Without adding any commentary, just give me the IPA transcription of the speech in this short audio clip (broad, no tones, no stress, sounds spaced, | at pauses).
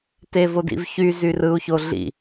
t e v o d ḭ v ç y z y r ɯ u̯ ç o ɮ ḭ